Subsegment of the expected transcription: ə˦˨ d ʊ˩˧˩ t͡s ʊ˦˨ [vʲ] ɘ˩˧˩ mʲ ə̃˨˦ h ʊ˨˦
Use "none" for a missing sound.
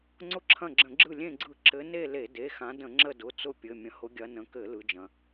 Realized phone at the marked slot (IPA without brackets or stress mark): pʲ